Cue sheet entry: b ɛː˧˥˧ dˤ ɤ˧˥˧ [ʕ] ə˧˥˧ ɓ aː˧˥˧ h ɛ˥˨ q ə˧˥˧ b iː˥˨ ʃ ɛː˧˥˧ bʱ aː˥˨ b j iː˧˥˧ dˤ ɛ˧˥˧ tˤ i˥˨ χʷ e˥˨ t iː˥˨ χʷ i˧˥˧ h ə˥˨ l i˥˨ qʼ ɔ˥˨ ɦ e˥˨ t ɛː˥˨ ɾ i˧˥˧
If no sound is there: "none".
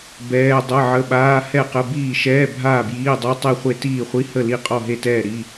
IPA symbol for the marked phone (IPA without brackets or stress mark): ʕ